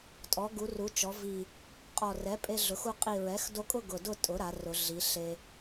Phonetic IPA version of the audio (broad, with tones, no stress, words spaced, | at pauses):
tʼɔ˩˧ ɡu˩˧ru˩˧t͡ʃɔ˩˧ vi˨˩ | qʼɔ˨˩rɛ˩˥ pʼe˧ɮʊ˩˧xu˧ qʼi˨˩ɹɛ˩˥xdo˧kʼʊ˥˧ ɡʊ˨˩dʊ˥˧ tʼʊ˩˥ɾa˩˧ rʊ˩˧ɮi˩˧ ɬe˧